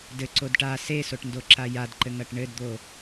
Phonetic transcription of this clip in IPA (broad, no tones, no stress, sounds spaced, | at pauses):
d ɘ ǀ o d ʈ a s e s o ʈ n d o ǁ a j a d ǃ ɘ ŋ ɐ ʈ ɳ ɘ d d̪ o